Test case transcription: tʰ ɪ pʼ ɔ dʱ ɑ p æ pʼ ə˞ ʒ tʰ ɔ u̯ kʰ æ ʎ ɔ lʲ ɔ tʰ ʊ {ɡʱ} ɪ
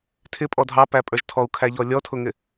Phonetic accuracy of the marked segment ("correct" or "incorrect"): incorrect